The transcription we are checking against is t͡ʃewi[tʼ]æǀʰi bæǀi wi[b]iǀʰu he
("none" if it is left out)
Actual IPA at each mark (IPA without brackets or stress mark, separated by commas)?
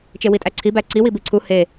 tʼ, b